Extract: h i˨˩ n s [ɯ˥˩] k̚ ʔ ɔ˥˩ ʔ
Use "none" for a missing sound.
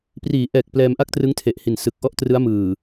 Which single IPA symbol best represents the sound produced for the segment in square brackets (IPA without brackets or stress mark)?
ɯ˨˩